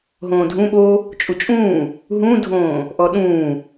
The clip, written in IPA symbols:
ɦ õː dʱ ũ ɓ o | t͡ʃʼ u t͡ʃʼ ũː | ɦ ũ dʱ õː | ʔ ɔ ɗ ũː

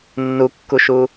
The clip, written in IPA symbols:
nː u kː u ʃ u

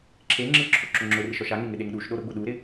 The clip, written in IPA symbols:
ǁʰ e ŋ͡ǁ ɪ ǁʰ o ǁ ʊ ŋ͡ǁ ʊ r ɪ ʃ ɔ ʃ a ŋ e ŋ ɪ ɗ e ŋ ɗ u ʃ ɗ o ɾ ʊ ɡ͡b ʊ ɗ u ɾ ɪ

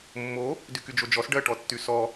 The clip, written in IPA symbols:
mː o | d y k y d͡ʒ o d͡ʒ ɔ s ɖ ɜ ʈ ɔ tː y s ɔ

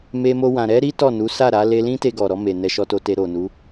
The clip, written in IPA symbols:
m e˧ m o˧ w ã˨ ɾ ɛ˧ ɾ i˦ t ɔ˦˨ n u˨˦ s a˦˨ ɾ a˨˦ l e˧ l ĩ˦ t e˧ ɡ ɔ˨ ɾ ɔ˧ m e˨ n ɛ˧ ʃ ɔ˧ t o˧ t e˧ ɾ o˨ n u˨˦

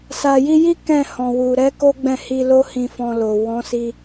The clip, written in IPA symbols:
s a˨ j i˧ j i˦ k ɛ̃˦˨ h ɔ̃˨ w u˨ ɾ ɛ˨˦ k o˦ ɡ͡b ɛ̃˦˨ h i˧ l o˦ h ĩ˧ f ɔ̃˧ l o˨ w ɔ̃˨˦ s i˧

